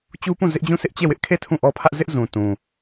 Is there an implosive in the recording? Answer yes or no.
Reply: no